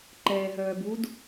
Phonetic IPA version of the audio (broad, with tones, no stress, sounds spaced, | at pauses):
ǃ ɛː˨ ɦ œː˨ b u˦ d